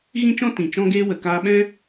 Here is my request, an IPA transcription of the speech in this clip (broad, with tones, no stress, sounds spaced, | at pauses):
ɣ ĩ˦ t͡ʃ ɔ̃˦ t ĩ˨ t͡ʃ ɔ̃˦ ɡ eː˦ w ə˨ k aː˧ ɓ ɛ̃˦